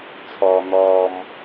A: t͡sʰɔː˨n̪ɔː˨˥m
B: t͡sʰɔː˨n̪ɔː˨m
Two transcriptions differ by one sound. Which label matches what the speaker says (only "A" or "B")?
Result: B